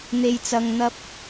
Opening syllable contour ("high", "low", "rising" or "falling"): low